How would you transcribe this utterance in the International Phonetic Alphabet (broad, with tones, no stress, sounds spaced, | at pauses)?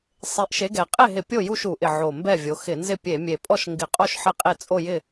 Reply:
sˤ e˨˦ ʔ ʃ e˨˦ ɡ ɛ˨˩ qʼ e˥˨ ɦ ɪ˧˩˧ pʲ o˥˨ j u˥˨ ʃ u˧˩˧ ʔ ɪ˨˩ ʕ o˨˩ m b ɛ˥˨ vʲ o˨˦ x ɪ˧˩˧ n z ɪ˥˨ pʲ e˧˩˧ mʲ e˨˩ pʼ ɔ˥˨ ʃ ŋ ɡ ɪ˧˩˧ qʼ o˥˨ ʃ ħ ɪ˥˨ qʼ e˥˨ t͡sʼ o˥˨ j ɪ˥˨